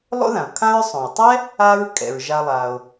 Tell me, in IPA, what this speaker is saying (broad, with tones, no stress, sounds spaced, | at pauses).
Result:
lˠ o̰˥ ð ã˩ o̯ kʰ ã˦ ɹ sˤ õ˩ e̯ tˤ ɛ˥ | a˦ ɹ kʼ ɛ̰˩ ɹ ʒ a˨ lˠ a˩ o̯